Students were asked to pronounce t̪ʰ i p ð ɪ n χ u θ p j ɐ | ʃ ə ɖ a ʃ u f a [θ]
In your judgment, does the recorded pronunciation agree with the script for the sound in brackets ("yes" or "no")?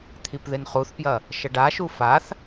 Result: yes